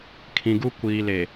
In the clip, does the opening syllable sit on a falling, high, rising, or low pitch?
low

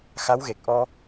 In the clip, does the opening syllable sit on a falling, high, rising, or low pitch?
rising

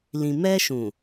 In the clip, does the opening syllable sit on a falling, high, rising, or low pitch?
low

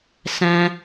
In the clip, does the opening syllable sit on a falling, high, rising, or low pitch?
high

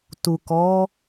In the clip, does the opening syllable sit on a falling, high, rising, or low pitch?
low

